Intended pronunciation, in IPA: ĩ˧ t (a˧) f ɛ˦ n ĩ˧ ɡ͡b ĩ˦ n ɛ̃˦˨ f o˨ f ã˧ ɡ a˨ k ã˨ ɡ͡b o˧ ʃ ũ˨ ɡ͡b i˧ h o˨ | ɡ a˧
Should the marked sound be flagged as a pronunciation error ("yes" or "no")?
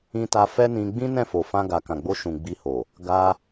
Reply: no